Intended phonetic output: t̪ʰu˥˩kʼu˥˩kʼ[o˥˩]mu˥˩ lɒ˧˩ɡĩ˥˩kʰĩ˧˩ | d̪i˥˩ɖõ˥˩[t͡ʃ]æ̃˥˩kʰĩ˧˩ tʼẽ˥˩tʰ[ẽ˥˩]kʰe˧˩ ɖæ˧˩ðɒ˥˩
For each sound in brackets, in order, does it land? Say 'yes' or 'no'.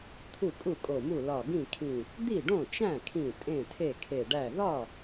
no, yes, no

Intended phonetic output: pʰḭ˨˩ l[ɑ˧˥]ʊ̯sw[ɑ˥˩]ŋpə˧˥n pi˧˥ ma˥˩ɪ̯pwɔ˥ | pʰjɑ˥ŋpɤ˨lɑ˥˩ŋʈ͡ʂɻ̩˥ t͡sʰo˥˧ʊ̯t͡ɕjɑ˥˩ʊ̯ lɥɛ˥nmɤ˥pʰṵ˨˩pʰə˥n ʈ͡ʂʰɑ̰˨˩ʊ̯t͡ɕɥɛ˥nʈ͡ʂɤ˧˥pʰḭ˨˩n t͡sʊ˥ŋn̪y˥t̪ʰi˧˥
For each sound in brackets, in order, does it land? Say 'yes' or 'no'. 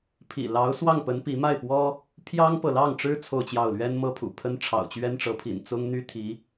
yes, yes

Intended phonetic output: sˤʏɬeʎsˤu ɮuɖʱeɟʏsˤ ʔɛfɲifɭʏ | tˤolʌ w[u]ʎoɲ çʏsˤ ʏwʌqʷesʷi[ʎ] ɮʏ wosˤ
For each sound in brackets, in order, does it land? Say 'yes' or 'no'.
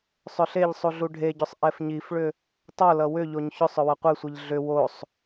no, yes

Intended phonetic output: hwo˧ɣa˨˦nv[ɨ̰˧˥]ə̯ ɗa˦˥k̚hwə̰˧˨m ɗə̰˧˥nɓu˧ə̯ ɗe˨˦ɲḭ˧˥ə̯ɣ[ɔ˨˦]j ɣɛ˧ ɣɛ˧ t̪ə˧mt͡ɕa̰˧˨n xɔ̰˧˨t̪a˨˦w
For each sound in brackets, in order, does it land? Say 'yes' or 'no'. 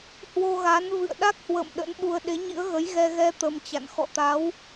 no, no

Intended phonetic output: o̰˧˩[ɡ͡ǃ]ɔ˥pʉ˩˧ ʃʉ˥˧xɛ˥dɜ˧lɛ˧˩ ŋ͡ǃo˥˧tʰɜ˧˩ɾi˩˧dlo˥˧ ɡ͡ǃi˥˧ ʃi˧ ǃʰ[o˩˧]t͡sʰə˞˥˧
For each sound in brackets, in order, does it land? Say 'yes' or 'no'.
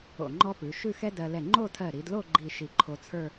no, no

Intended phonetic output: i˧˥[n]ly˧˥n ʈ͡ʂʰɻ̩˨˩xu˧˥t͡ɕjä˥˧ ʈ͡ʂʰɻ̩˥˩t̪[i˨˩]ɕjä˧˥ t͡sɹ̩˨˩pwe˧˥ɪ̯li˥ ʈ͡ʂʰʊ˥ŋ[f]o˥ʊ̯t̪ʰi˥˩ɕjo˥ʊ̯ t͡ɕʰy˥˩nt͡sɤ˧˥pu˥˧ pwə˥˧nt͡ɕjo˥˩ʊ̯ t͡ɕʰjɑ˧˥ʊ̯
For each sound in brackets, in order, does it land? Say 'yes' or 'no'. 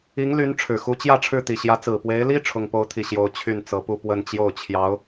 no, yes, no

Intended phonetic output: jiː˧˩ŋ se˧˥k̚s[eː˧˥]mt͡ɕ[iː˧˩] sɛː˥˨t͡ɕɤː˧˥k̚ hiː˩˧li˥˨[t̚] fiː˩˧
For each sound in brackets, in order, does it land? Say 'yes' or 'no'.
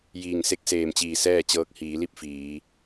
no, yes, no

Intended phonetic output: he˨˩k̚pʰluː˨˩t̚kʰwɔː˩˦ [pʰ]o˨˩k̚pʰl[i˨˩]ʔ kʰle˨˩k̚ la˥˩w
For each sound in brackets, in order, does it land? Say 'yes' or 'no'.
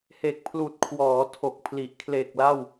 no, yes

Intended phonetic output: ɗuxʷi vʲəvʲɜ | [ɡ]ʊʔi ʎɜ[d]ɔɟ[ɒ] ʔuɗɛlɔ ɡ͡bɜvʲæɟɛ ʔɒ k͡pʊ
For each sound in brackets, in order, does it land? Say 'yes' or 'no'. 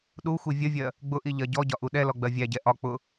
no, no, yes

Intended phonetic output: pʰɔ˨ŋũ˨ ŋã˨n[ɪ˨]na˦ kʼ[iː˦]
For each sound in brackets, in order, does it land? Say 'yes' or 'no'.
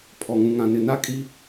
yes, no

